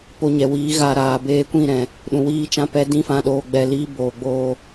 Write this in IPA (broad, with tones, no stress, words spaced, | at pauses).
po˧ɲɛ˨wiː˨˦ɣa˧ ɾaː˨beː˧kʷĩ˦˨ ɾɛ̃˨ | ɗũ˨wiː˧ t͡ʃã˦pɛ˦dĩ˦fã˧ ɗoː˧ɡ͡bɛ˧liː˦ boː˨ɡ͡boː˧